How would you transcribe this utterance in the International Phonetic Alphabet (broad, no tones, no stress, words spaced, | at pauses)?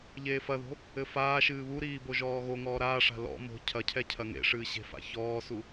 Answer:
ʎeːfɐðo̤ | ɘfaːʃɨː βuɾiː boʒɔːɣoŋɔː ɾaːʂa̤ lɔ̰ mo̤ cʰɐcʰɛ cʰɐŋḛʂɨː ɕe̤fa̰çɔːsu